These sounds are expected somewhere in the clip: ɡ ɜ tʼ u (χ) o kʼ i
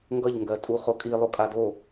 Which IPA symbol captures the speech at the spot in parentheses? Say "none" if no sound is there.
χ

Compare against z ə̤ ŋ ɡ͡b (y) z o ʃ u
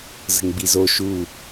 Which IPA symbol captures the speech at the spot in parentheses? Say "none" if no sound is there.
i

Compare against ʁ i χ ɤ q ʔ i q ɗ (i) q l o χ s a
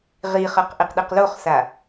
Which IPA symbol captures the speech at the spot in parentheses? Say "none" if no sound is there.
i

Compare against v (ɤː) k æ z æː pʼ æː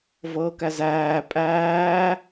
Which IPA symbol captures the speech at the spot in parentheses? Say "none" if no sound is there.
ɤː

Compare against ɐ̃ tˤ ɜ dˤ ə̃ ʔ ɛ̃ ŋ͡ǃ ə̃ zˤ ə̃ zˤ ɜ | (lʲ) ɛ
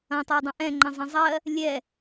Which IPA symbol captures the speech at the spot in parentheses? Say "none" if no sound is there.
lʲ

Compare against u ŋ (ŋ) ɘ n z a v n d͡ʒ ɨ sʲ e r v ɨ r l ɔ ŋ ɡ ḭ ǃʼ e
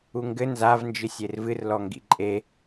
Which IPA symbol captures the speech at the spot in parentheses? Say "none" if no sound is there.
ɡ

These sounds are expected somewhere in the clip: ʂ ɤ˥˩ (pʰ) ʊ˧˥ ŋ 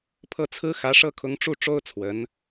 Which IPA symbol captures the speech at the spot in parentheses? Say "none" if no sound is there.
kʰ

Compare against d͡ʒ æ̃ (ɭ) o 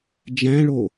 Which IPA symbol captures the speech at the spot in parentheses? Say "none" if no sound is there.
ɭ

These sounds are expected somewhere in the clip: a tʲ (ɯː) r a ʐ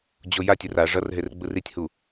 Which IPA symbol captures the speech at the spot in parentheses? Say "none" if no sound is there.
ɯ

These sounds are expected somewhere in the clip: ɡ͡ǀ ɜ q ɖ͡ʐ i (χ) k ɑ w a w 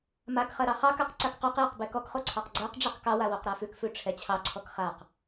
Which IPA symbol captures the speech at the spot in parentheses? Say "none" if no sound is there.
q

